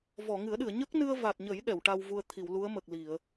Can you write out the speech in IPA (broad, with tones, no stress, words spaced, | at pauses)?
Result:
vɔ˨˩˨ŋɨ˨˩˦ə̯ɗɨ˨˩˨ə̯ ɲə˦˥k̚nɨ˧ə̯va˨˩t̚ɲə˨˩˦j ɗɛ˨˩˨wʈa˧wvu˧ə̯ t̪ʰi˨˩˨wlu˧˥ə̯mə˨˩k̚li˨˩˨ə̯